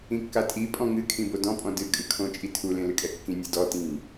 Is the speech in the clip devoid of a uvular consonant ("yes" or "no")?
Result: yes